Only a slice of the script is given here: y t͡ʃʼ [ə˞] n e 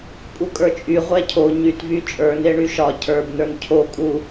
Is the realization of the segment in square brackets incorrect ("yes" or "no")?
no